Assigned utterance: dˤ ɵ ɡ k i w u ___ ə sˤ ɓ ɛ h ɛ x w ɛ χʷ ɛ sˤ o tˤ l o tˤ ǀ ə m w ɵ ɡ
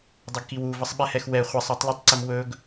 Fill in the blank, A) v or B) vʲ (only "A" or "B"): A